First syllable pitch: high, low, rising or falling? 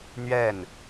falling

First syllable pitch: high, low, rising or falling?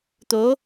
rising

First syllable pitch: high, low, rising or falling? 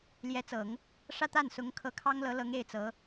rising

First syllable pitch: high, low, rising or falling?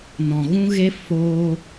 low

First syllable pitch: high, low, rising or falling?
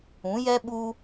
rising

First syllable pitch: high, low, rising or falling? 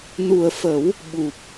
low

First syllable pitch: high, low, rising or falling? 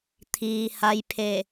low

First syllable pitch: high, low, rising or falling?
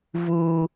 high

